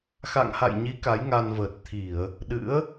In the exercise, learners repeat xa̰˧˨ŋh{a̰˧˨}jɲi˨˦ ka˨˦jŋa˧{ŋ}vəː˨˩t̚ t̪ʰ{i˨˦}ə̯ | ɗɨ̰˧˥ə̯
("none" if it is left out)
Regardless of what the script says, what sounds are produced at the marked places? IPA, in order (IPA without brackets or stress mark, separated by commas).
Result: a̰˧˨, n, i˧˩˨